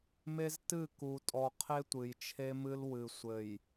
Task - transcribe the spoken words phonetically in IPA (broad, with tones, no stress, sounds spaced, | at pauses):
m e˦ z t ɨ˦˨ k u˨ tʼ ɔ˨ qʰ e˦ tʷ ɨ˨ j t͡ʃʰ e˦ m ɨ˦ l w ɨ˨ sʷ ɘ˨ j